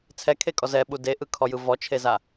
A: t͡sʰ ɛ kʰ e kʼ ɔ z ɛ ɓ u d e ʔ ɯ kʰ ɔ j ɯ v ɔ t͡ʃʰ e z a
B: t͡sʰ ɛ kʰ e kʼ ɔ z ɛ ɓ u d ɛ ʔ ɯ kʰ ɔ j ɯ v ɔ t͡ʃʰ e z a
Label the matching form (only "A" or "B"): A